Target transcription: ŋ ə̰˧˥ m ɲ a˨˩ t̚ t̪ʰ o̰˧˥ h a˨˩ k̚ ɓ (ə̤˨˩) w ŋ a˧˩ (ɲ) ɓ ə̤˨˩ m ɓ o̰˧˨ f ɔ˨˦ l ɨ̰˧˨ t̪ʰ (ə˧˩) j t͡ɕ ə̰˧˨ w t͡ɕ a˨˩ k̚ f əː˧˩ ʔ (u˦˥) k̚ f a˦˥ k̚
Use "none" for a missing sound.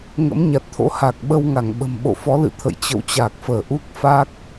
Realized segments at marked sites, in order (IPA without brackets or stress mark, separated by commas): ə˧, ŋ, ə̰˧˨, u˦˥